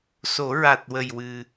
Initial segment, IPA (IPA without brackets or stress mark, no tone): s